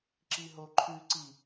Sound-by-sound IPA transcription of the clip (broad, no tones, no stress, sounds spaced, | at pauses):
ǁ i ɦ o ǃʰ ʉ ǀ i